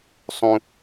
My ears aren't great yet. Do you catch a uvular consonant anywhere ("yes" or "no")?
no